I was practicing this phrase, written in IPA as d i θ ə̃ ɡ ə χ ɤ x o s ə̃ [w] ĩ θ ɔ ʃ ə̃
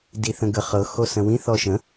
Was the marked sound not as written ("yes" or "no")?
no